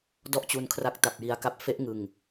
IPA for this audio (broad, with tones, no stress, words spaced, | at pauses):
dɔ˥˩ʔt͡ɕu˧nkʰra˦˥k̚ ta˨˩p̚ji˧a̯ka˦˥p̚ fe˦˥ʔ ŋɯ˨˩ŋ